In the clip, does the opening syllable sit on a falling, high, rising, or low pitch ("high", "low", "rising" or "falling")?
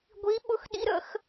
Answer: rising